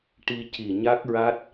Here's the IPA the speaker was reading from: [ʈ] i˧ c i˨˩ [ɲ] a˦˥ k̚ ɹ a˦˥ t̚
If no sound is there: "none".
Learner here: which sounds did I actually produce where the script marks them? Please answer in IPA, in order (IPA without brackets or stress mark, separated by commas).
ʈ, ɲ